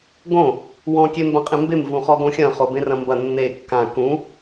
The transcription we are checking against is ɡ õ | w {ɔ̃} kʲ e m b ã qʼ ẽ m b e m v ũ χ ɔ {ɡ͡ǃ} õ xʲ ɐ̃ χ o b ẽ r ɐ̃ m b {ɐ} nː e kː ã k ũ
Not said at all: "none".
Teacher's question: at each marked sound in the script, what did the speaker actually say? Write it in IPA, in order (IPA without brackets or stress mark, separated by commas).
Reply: ɔ̃, ɡ, ɐ